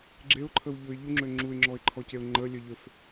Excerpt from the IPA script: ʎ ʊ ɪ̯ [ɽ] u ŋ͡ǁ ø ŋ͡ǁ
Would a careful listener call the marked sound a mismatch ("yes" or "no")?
yes